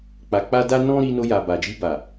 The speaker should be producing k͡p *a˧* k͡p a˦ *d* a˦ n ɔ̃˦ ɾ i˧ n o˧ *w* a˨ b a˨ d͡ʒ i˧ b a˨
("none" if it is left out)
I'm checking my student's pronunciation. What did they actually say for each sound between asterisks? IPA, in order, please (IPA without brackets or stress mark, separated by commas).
a˧, d, j